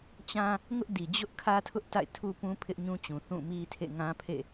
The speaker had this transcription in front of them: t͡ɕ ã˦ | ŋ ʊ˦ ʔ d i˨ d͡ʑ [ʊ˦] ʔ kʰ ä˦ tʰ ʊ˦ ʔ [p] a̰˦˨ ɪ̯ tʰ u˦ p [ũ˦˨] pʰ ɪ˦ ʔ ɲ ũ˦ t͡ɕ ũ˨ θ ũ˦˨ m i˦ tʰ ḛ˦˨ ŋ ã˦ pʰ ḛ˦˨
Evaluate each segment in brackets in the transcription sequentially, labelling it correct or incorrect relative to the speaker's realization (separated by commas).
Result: correct, incorrect, incorrect